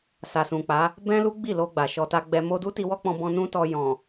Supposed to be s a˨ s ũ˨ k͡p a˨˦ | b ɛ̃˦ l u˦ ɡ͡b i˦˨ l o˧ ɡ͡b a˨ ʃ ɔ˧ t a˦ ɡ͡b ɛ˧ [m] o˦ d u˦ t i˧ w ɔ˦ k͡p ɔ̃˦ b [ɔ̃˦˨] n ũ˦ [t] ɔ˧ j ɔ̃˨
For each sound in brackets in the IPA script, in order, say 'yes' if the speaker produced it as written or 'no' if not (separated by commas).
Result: yes, no, yes